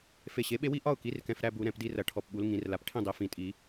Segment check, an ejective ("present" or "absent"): present